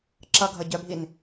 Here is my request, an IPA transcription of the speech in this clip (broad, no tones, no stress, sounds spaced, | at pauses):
ǁ ʌ ɡʱ ʌ ɟ œ bʱ i n